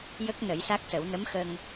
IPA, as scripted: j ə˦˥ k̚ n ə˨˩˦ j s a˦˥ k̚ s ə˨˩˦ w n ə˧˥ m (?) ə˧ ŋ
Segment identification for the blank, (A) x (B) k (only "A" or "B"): A